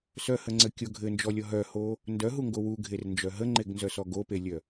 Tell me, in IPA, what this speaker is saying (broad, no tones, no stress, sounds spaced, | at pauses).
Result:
s œ h ə ŋ͡ǀ ɘ kʲ o ɡʱ ɘ n d͡ʒ ɔ lʲ ɔ ɦ œ h o | n d œ ɦ u ŋ ɡ o w u ɡʱ e r n d͡ʒ œ ɦ ə ŋ͡ǃ e ɡ n z œ s ɔ ɡ o p e lʲ œ